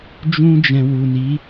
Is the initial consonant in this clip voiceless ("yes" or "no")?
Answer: no